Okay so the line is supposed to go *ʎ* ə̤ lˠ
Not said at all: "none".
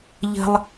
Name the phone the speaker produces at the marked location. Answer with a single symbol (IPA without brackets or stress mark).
ʎ